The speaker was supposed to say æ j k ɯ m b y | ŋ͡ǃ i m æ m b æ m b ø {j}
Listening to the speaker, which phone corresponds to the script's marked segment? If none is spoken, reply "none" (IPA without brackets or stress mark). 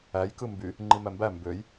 j